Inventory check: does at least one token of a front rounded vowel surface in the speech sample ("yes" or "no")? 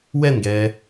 no